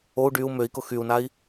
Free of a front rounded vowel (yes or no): no